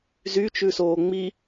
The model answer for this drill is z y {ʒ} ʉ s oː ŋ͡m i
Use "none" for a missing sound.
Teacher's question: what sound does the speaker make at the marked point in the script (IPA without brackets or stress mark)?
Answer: t͡ʃ